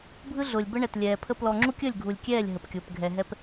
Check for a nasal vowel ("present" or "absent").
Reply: absent